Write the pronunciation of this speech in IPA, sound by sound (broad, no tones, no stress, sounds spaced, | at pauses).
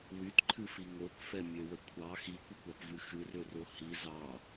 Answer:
w y t ǃʰ ɨ f i ŋ o k f ɛ mʲ ø w ə kʷʰ ɑ x i kʷ ə kʷ ɑ p v ɨ x ɨ r ø r o h i z ɑ